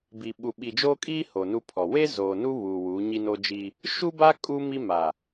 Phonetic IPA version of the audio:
bi˨ ɓu˨ɓi˨d͡ʒoː˦kʼiː˦ ho˨nu˦pʰɔ˨ we˦ zoː˨nu˦ βuː˨ wuː˨˦ɲi˦no˦d͡ʒiː˦ | ʃu˦ba˦ kʼu˦ mi˦ ma˨

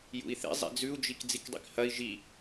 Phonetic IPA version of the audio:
jṵi̯θḭ zˤḭd͡zʉu̯d͡ʒik d͡zikdˤḭkhɐi̯ ʒi

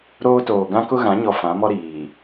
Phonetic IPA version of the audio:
ɾoː˦toː˨ ɡã˦kʊ˦ɣã˨˦ ɲɔ˨ fã˨˦mɔ˦ ɾiː˨

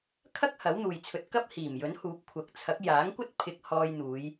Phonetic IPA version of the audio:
kʰɐ˥k̚ hɐ˨˥wn̪uː˨jt͡sʰɵ˧t̚ kɐ˥p̚hiː˨˩mjɵ˨˥nhuː˨˥p̚ kʷʰɐ˨k̚t͡sʰɐ˨˥k̚ jaː˨˥ŋkʷɐ˥t̚ pʰɪ˧k̚hɔː˧jn̪uː˨˧j

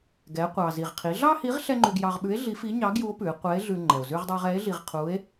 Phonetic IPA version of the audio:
ɡɛ˩˧qʷɑ˩ zi˩ʁqʰi˩˧ ɮɑ˥hi˧˥ʁ ɬɛ˥ŋ͡ǃʉ˧ɡ jɑ˧ʁɓʉ˧˥e̯ ɮi˧˥fi˧˥ ɲɑ˧˥ɡju˧˥o̯pʉ˩˧e̯ qʷɛ˧˥e̯ɮʉ˧ ŋ͡ǃɛ˩o̯zʉ˧ʁdˤɑ˧ʁ ɛ˧˥e̯ɮi˧ʁqʰu˧˥e̯

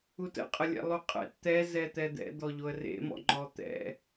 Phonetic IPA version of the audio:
utə̰ qʼəlʲɛ̰lˠuqʼɛ̰t t̪ɛ zɛt̪ɛd̪ɛ̰ d̪ɔʎoə̯rḛ mɔ̰ŋ͡ǃɔt̪ɛ̰

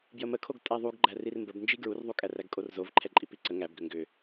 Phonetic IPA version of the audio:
bjəməkʰoɡ tʼæðˤuɡ ɡ͡ǃærirmbəbnd͡ʒi ɡɹurðˤukʼær æɡkʼorzovǃʰɛ ǃʼipiǀə ŋæbɡʏ ŋɡʏ

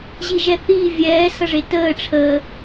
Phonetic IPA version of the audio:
ʑiʒɛθiː vʲɛː sʌʐetəː ʈ͡ʂʰəː

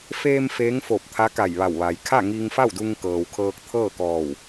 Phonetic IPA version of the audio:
feː˧m feː˧˥ŋfo˧˩p̚ t̪ʰa˧˥ka˧˩jʋa˧˩wʋa˩j kʰa˥˨ŋiː˧ŋfa˥˨wdu˧ŋ kɤː˩wkʰɤː˧k̚t̪ʰɤː˥˨kɔː˧˩w

